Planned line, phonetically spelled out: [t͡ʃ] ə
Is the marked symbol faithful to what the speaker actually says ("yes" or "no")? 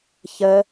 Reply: no